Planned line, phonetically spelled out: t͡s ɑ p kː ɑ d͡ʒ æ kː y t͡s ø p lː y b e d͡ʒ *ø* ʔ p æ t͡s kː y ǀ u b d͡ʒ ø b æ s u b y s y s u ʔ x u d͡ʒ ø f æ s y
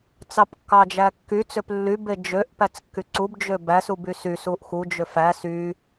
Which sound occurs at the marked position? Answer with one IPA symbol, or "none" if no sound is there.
ø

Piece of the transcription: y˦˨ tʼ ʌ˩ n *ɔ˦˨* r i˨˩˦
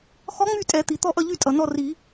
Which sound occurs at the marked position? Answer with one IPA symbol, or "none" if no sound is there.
ɔ˦˨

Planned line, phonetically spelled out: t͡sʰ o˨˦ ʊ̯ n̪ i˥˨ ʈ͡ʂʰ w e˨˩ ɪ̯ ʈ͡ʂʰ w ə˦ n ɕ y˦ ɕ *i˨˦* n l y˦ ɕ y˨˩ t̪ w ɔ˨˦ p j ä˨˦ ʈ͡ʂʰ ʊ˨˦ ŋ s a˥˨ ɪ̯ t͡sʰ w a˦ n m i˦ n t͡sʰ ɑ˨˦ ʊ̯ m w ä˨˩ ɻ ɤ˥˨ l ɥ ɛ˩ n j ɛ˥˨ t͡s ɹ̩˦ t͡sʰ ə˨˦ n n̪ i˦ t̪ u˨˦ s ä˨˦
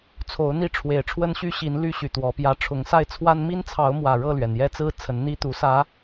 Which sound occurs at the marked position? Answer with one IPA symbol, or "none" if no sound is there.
i˨˦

